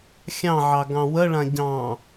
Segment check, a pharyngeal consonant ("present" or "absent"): present